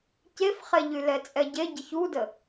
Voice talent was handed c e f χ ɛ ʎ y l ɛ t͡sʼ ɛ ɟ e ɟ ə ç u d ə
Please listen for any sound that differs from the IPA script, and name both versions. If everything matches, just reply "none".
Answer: none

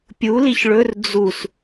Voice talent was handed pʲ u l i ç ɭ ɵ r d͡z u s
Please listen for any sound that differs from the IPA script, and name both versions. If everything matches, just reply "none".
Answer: none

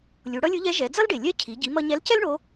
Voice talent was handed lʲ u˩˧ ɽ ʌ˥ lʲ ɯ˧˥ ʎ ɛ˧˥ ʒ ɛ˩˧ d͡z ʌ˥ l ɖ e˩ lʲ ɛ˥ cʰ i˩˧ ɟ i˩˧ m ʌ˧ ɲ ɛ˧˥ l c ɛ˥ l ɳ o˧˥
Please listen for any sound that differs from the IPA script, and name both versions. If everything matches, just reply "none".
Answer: none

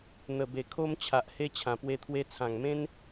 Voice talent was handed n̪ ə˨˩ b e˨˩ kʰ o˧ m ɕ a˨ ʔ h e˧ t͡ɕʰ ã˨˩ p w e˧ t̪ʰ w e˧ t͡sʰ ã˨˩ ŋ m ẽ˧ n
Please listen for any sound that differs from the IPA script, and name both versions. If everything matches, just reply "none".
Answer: ɕ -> t͡ɕʰ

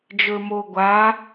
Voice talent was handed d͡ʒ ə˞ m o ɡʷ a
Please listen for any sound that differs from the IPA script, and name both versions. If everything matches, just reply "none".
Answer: none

